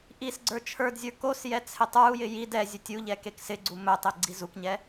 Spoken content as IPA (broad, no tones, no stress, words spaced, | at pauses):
ʔisɡ͡ǀə˞ t͡ʃʰə˞dzʲə˞ kosjɛ t͡sʰɪtˤə˞u̯jɪ jid ɛzʲɵtʲ uʎɛ keksɪɡ͡ǀu mɵtˤe ɡ͡ǀizukɲɛ